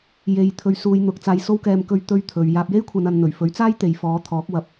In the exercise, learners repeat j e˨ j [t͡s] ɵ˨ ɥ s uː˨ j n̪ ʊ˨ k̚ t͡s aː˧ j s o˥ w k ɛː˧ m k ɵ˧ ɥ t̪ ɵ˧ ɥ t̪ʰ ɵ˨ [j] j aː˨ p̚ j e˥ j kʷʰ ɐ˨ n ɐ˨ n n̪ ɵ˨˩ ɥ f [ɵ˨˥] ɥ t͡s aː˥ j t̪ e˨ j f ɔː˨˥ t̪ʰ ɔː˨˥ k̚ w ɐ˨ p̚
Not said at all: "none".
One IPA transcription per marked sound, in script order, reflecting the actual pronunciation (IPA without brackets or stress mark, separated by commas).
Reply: t̪ʰ, ɥ, ɵ˨˥